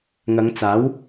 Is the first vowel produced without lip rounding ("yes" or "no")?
yes